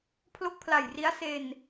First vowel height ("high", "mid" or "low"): mid